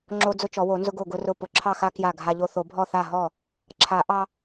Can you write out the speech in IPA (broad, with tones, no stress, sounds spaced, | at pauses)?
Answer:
ŋ͡ǁ o˦ d͡z ʊ˦ t͡ʃ ɔ˨˩˦ w o˨˩˦ n z ʊ˦ ɡ o˥˩ ɡ ʊ˦ r ʊ˥˩ p ʊ˨˩˦ ǁʰ ɑ˥˩ x a˦ k j a˥˩ ɡʱ a˦ ʎ o˦ θ o˨˩˦ bʱ ɔ˥˩ θ a˥˩ ɦ ɔ˥˩ | ǁʰ a˨˩˦ ʔ ɑ˦